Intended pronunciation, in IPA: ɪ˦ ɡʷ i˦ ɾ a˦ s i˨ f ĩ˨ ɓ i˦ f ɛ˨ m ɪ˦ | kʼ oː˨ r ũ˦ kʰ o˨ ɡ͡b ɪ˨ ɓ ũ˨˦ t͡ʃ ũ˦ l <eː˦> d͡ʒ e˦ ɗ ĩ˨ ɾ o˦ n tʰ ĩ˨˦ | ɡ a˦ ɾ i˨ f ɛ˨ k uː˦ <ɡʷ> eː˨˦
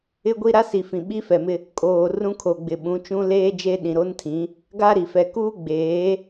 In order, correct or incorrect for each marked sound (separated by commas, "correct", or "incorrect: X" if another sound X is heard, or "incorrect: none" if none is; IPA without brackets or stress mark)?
correct, incorrect: ɡ͡b